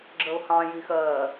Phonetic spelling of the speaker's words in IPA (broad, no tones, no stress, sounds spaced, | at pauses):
ɡ͡ǁ ə ʊ̯ h ɑ̃ j i x ɜː